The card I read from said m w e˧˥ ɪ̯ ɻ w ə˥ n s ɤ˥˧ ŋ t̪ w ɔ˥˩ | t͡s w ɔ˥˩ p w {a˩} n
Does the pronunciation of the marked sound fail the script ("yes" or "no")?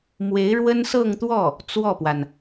no